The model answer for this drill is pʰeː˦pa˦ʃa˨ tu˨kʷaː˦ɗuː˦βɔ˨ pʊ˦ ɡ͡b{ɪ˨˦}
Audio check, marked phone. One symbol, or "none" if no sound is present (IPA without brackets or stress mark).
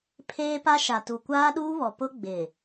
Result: ɪ˨